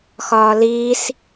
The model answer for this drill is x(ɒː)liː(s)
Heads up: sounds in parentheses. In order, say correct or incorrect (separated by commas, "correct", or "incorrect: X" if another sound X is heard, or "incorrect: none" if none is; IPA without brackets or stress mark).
correct, correct